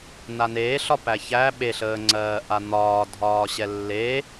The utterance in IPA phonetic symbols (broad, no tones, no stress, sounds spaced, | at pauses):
n a n eː ɬ ɒ p æ ç æ ɓ e ɬ əː ŋ͡ǀ ɜː ʔ a n̪ ɒː dʱ ɒː ɕ ɛ lː e